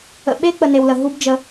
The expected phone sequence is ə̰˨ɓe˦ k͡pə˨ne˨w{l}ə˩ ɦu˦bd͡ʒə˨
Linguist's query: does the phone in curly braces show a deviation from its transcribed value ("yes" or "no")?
no